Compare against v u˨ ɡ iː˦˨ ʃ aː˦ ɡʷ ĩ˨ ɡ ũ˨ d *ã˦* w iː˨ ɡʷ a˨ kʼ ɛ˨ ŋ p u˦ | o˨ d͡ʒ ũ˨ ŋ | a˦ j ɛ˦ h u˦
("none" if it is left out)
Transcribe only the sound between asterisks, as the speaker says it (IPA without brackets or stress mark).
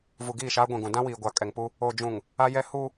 ã˦